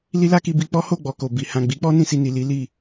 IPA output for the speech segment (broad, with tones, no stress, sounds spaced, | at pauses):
l i˦ l a˦ k i˧ b i˧ k͡p ɔ˦ h o˦˨ ɡ͡b ɔ˨ k o˨ b i˨ h ã˨ ɡ͡b i˨˦ k͡p ɔ˦ n ĩ˧ s i˧ n i˨ l i˨˦ l i˦˨